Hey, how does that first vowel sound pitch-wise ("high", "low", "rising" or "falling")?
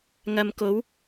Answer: low